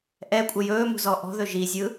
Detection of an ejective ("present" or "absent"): present